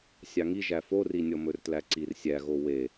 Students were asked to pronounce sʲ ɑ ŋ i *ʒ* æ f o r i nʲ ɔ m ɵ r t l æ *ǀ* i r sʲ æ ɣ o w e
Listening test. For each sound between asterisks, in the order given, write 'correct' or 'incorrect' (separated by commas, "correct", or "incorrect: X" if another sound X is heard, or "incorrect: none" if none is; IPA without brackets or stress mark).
correct, correct